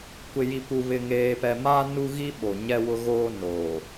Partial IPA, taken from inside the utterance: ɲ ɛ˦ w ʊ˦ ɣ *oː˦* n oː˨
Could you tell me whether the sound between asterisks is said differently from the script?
no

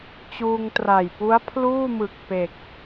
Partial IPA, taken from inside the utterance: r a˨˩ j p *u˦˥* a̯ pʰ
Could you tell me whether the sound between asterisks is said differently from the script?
no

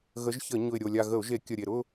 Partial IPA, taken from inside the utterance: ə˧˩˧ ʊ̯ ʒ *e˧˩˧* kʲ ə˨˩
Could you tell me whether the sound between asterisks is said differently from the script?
no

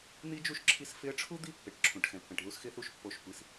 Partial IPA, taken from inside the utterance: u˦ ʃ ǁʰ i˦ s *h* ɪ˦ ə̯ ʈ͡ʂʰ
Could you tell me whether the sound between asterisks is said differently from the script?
yes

